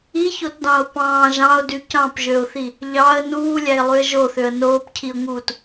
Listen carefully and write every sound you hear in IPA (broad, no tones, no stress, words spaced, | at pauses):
içotdɑ̃ʊ̯ pɑ̃ː ʒɑ̃ʊ̯dy cɑ̃pʒøʊ̯θi | ʎɑə̯ nuːlʲæɪ̯lˠyə̯ ʒoθøə̯ noːpcʰiʊ̯ŋuːt